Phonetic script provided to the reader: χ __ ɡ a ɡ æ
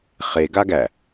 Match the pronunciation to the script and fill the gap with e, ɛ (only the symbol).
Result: e